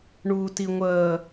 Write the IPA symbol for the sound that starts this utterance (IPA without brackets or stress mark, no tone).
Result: ɳ